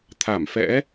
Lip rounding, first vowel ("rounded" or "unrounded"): unrounded